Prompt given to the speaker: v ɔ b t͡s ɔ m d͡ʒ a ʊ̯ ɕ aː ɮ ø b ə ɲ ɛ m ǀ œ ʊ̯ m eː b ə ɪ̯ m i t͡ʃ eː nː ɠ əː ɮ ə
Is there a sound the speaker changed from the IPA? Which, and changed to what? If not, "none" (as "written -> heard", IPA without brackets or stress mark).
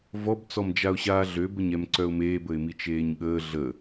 nː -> ɲ